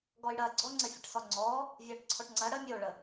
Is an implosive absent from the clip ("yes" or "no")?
yes